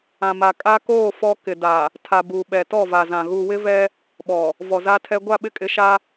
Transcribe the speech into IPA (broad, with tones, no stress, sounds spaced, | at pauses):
ã˨ m a˨ kʼ a˦ k oː˦˨ f ɔ˦ k ɪ˨ d a˨ | tʰ a˨ b u˨ ɓ ɛ˨ t ɔ˦˨ v a˨ z ã˨ ɣ u˨ w ɪ˦ v ɛ˦ | ɓ ɔ˨ | v ɔ˨ z a˦ tʰ ɛ˦ ɡʷ a˦˨ ɓ ɪ˦˨ kʼ ɪ˨˦ ʃ a˦